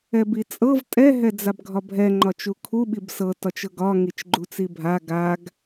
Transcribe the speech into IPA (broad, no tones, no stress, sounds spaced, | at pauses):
ɛ b i t͡sʼ ɤ v tʼ ɛ ɦ ɛ d͡z a b ɡʱ ɒ bʱ ɛ ŋ͡ǃ ɒ t͡ʃ u kʰ u ɓ i b s ɤ t ɒ t͡ʃ ɤ ɡ ɒ ŋ i t͡ʃ ɡ͡ǃ u t͡s i bʱ a ɡ a ɡ